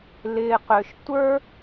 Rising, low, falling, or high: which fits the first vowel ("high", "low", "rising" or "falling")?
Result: low